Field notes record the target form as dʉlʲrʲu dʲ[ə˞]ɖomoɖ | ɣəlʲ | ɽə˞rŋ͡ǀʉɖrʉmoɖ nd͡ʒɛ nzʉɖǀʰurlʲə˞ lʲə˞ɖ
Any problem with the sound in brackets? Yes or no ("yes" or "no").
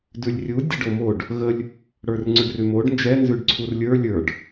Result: yes